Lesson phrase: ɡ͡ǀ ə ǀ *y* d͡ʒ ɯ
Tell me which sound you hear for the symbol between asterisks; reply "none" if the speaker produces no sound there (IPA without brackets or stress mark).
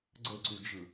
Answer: y